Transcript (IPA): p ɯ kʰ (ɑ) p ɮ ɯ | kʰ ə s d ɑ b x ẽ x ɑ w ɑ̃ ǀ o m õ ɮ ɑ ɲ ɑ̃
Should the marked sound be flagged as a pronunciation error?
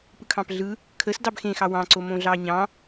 yes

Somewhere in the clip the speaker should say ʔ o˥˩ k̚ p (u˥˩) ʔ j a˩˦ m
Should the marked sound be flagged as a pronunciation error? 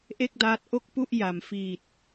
no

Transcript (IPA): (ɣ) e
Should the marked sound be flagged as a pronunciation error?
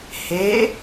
yes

